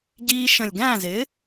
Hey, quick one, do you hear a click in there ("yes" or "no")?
no